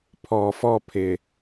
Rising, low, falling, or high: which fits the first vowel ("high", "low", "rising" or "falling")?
low